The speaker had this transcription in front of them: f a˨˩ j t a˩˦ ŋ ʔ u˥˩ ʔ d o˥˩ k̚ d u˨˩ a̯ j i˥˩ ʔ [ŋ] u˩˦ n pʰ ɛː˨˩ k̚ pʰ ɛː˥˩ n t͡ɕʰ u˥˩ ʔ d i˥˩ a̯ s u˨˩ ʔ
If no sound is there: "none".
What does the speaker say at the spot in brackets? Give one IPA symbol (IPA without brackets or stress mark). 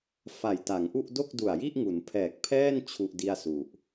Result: ŋ